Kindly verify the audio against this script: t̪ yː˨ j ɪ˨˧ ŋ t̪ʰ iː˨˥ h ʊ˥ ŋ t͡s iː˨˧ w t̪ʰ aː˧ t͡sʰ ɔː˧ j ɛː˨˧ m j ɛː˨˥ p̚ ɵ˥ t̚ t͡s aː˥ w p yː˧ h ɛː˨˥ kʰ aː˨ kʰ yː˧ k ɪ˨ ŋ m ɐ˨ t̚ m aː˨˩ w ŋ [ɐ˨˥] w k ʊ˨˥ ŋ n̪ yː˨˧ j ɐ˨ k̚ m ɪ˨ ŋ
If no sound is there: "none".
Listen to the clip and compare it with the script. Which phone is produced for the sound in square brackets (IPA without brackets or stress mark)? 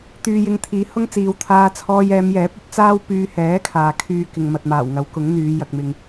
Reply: ɐ˨˥